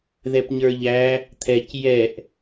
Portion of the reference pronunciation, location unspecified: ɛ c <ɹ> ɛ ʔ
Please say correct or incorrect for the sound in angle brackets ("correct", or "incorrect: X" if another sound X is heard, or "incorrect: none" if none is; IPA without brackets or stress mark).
incorrect: j